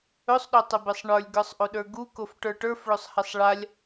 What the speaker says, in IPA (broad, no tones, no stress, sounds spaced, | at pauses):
ɵ sˤ ɗ ɵ tˤ ə b e sˤ ɳ ə˞ lʲ ɡ ə˞ sˤ ʔ o ɗ ə˞ ɡ u k o f ʈ ə˞ ʈ ə˞ f ɭ ɵ sˤ h e sˤ ɭ a lʲ